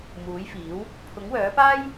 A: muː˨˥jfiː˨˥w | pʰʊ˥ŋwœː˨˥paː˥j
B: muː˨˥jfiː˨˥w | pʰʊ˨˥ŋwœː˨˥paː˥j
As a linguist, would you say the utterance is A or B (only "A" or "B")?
B